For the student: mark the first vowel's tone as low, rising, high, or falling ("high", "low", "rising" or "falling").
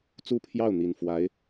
falling